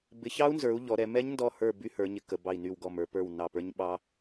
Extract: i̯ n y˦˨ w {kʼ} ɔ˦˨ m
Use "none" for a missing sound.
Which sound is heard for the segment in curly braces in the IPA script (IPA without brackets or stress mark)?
ɡ